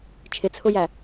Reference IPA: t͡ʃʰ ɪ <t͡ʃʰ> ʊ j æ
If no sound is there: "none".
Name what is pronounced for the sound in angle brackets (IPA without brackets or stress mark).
t͡sʰ